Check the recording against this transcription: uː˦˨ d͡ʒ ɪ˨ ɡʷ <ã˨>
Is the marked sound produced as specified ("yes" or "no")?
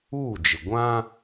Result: no